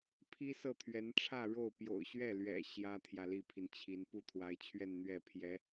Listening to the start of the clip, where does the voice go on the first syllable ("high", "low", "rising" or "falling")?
high